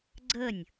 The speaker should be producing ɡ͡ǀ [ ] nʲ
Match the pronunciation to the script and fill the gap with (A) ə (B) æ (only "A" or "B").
A